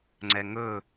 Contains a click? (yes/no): yes